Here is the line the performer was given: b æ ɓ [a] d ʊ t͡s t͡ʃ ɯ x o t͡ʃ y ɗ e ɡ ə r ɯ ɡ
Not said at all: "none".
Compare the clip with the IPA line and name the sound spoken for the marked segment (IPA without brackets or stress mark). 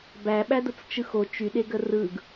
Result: æ